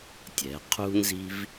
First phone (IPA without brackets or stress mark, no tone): tʲ